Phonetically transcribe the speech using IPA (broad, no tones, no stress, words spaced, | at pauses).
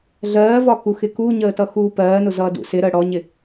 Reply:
ɮɜːvɒ kuxɪkuɲəː tʌxuːpɜːnʊ zʌːdṵsɪɾəː ɽɔɲɪ